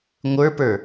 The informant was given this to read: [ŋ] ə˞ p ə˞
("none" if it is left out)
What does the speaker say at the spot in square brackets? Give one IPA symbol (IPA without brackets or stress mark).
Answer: ŋʷ